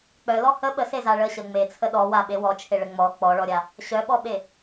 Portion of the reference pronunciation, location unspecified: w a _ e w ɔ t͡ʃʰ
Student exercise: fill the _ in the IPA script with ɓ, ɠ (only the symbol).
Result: ɓ